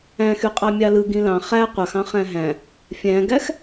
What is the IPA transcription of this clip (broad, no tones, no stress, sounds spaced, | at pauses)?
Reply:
æ̃ x y qʼ ɑ mʲ ɑ l ɯ ɡ ĩ l ɑ̃ χ æ qʷ ɑ x ɑ̃ χ æ̃ ɦ æ̃ | fʲ æ̃ ɡ æ x